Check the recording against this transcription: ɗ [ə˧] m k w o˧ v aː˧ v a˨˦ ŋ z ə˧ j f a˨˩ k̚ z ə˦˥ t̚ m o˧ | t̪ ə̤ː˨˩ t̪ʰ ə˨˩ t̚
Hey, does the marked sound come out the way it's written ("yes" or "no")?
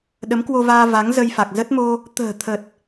no